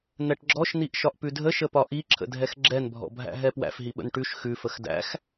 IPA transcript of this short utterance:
n̪ ɛ ʈ ɡ͡ǁ ɔ ʃ n̪ i ʔ ʃ ɒ ʔ p ʉ dʱ ə ʃ ə p ɒ ʔ i ǁʰ ə̰ dʱ ɛ x ɡ͡ǁ ɛ n bʱ ɔ̰ bʱ æ̰ ɦ ɛ p w æ̰ f ɦ i ɓ ə̰ n ʈ ʉ ʃ x ʉ f ə x d æ̰ x

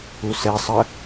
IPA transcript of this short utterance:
u s ɛ sˤ ə

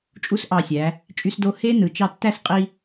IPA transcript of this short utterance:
t͡ʃʼ u˥ s ʔ ɑ˧˩ sʲ æ˩˧ | t͡ʃʼ y˧ s d o˧ h eː˥ n ɯ˩˧ t͡ʃ ɑ˧ tː æ˥˧ s qʼ i˧

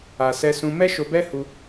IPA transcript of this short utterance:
a˨ s ɛ˧ s ũ˧ m ɛ˦ ʃ o˧ b ɛ˦ h u˧

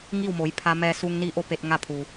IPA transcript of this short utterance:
ŋ i˥˨ w m o˩˧ j pʰ a˧ m ɛː˧ s u˧ ŋ n i˧˥ ʔ o˧ p e˧ t̚ ŋ a˥˨ pʰ u˩

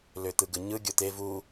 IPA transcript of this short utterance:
l ø t̪ ɯ ɡ ɯ ɲ ɯ ɡʲ o t̪ e v u

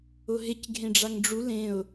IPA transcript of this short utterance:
ʊ ɦ ɪ c ɡʱ ẽ ɖ͡ʐ a ŋ ɖ͡ʐ u l ẽ ʊ̯

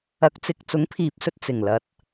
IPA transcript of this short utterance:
ɐ˨˥ k̚ t͡s ɪ˨ k̚ t͡s ʊ˨˥ ŋ pʰ iː˨ p̚ s ɵ˧ t̚ t͡s ɪ˨˩ ŋ l ɐ˨˥ t̚

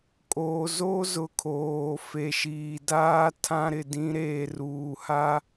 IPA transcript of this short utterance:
kʼ oː˨ z o˦ z ʊ˨ kʰ oː˨ f e˨ ʃ iː˨ d aː˦ tʰ ã˦ ɾ ɪ˨ d ĩ˦ ɾ eː˨ r uː˨ h a˦

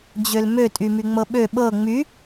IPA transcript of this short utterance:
d͡ʑ ø l m ø tʼ y m y ŋ͡m ɤ ɓ ø ɓ ɤ ŋ͡m y

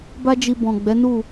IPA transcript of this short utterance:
b a˦ d͡ʒ i˧ b ɔ̃˨ ɡ͡b ɛ˨˦ n u˦˨

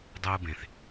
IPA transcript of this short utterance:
dˤ ɯː˧ b ẽ˨ θ

